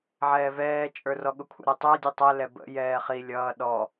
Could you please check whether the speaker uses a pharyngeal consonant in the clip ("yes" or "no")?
yes